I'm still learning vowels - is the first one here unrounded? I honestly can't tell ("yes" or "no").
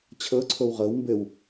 yes